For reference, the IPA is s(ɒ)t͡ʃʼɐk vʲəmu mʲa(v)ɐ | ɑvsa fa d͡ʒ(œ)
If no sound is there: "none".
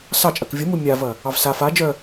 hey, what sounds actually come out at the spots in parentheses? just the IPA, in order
ɑ, v, œ

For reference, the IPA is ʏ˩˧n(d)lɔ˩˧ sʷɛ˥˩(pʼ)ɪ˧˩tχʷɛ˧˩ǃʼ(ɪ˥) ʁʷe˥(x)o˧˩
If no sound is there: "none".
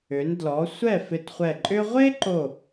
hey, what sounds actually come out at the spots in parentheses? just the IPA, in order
d, f, ʏ˥, ǃ

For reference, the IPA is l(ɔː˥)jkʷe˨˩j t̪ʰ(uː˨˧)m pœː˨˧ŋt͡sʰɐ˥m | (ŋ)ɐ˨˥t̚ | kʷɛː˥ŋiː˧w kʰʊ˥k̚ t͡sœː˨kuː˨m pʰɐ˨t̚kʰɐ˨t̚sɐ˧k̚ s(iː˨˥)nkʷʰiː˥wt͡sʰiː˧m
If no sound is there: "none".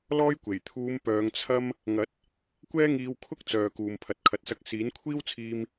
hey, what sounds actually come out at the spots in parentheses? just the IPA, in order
ɔː˥, uː˨˧, ŋ, iː˨˥

